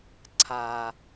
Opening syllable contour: low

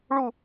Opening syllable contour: falling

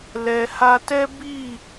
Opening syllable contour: low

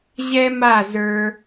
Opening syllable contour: high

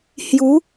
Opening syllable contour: rising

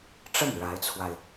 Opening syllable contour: falling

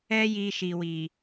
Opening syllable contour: high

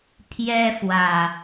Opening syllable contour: high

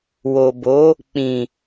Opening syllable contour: low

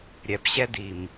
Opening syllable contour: low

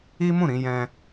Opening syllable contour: high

